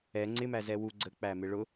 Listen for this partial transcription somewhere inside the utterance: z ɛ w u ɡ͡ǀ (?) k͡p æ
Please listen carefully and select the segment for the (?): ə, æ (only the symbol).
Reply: ə